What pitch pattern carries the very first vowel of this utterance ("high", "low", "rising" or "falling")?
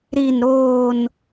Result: falling